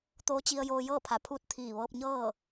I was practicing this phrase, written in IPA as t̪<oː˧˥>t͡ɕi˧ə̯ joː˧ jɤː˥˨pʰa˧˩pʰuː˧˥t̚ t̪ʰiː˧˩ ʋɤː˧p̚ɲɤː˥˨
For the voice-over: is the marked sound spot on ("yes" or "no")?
yes